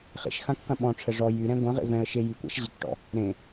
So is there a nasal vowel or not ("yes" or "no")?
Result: yes